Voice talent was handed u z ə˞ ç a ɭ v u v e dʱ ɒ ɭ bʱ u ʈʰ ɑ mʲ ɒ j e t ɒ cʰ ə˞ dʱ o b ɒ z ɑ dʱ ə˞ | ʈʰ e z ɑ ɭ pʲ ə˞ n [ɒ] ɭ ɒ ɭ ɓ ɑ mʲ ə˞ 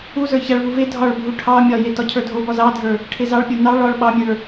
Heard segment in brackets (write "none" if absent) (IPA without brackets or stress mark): ɑ